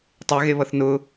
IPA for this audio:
tˤ e ɣ e β ʌ θ n ʊ

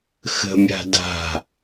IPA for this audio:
x ə̤ mʲ a̤ d a̤

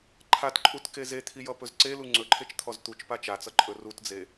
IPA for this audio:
ǃʰ a t ǃʼ u t k e z e t̪ʰ i j ʌ p ɵ z ǀ e l u ŋ͡ǀ ɵ ǃʰ e t͡ʃ t̪ʰ ɔ z t̪ u t͡ʃ p a t͡ʃ a t͡s ʌ ǃʼ ɵ r u t d͡z e

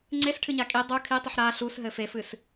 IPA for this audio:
ŋ͡ǀ e s ʈʰ ɨ ɲ a kʼ i dˤ u kʰ i tˤ u ħ ɾ a ɬ u s ɦ ɘ f e f ɨ s

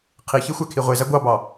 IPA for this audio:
qʰ i ç e xʷ æ kʰ i ʁʷ e z æ ɡʷ ɑ b ɑ

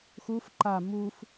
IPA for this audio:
x u f ǃ a m u f

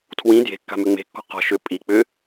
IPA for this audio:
tʰ w ĩ d j e̤ kː a̤ m ʏ ŋ͡m e̤ kː ɔ̤ q ɔ̤ ʃ ʏ pʼ i k͡p ʏ

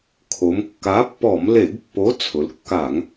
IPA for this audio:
kʰ o˩˧ m kː a˨˥ pː ɔ˧˩˧ m l e˧˩˧ ɡ pː o˨˥ t͡sʰ ʊ˩˧ l kː a˧˩˧ ŋ

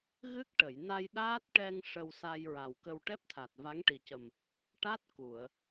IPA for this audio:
ɣ ɨ˦˥ k̚ ʈ ə˨˩˨ j n a˧ j ɗ aː˦˥ t̚ ʈ ɛ˧ ŋ ʂ ə˧ w s a˧ j ɹ a˨˩ w k ə˧ w ʈ ɛ˦˥ p̚ t̪ʰ a˨˩ t̚ v a˧˥ ŋ ʈ i˨˩ c ə˨˩ m | ʈ a˦˥ t̚ k u˨˩˨ ə̯

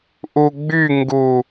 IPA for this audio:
ʔ u ɡ͡b y ŋ ɡ u

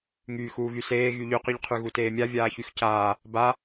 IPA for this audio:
ŋ yː x uː ɣ y s eː ɣ y ʎ y q y ʎ qʰ y ɣ u t eː mʲ a vʲ aː ç y x c aː | b a

